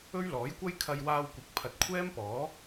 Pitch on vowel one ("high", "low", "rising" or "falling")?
high